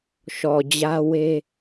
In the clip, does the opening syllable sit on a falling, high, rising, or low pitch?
low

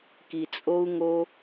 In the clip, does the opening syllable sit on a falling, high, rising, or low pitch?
low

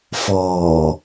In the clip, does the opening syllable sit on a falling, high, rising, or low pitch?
low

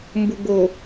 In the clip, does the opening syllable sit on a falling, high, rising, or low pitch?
low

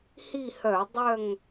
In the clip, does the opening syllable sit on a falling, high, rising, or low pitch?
falling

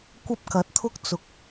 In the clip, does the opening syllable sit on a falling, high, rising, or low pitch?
high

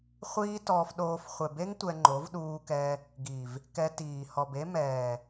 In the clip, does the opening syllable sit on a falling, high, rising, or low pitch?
high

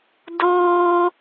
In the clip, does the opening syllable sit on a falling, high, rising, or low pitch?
high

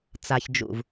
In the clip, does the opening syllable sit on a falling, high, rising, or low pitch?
low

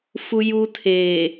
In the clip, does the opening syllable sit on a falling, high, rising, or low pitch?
high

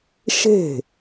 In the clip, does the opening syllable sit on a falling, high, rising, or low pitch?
falling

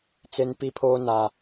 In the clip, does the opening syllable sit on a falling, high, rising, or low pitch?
high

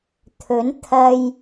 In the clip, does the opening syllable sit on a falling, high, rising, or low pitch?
rising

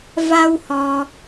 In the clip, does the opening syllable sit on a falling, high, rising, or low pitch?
high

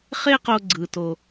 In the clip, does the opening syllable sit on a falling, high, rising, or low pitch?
high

